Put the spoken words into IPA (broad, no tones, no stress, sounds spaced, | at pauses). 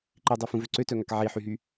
ǃ i dˤ i f ũ v ø ǀ ø t œ ŋ a k ʕ i ħ y ɦ y